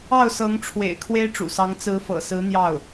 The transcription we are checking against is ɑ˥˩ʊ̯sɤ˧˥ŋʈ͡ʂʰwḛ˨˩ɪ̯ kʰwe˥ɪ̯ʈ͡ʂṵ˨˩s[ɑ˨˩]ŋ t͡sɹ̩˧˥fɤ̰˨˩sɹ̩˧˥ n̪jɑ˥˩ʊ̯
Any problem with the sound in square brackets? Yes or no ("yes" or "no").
yes